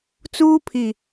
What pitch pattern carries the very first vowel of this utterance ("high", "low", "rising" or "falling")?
high